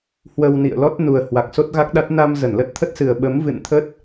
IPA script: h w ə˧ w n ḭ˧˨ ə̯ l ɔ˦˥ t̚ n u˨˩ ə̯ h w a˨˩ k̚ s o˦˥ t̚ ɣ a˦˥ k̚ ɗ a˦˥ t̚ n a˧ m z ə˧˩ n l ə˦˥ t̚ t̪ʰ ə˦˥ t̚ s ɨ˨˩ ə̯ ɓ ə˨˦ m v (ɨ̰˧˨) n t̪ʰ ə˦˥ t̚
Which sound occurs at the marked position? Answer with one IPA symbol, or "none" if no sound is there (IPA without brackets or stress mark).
ɨ̰˧˨